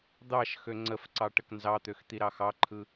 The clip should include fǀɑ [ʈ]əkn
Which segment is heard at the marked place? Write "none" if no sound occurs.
ʈ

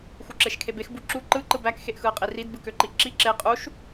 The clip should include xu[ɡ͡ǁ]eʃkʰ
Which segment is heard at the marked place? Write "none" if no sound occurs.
ǁ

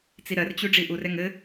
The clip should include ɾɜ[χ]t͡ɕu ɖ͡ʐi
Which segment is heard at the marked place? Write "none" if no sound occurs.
r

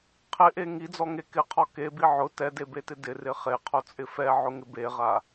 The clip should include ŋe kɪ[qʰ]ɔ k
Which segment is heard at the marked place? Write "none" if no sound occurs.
qʰ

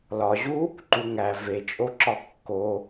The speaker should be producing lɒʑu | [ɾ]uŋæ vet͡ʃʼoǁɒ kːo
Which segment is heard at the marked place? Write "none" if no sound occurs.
ǃ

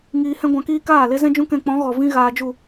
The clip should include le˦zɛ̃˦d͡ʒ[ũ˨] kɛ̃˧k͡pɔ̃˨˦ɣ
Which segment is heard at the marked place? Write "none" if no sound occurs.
ũ˦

